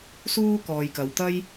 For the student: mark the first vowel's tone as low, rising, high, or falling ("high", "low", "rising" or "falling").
high